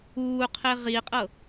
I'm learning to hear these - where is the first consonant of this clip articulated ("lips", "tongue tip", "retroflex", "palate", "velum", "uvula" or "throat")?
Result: uvula